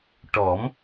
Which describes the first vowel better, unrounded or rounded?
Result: rounded